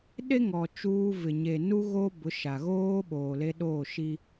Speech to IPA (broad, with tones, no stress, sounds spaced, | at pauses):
ɗ e˦ ŋ ɔ˨ t͡ʃ uː˦ v ɪ˨ ɲ e˨ n u˦ ɣ o˦ b ʊ˨˦ ʃ a˨ ɣ oː˦ ɓ oː˨ l e˦ ɗ oː˦˨ ʃ i˦